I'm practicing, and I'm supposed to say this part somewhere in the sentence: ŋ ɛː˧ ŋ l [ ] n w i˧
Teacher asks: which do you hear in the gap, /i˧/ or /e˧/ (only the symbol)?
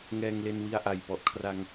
e˧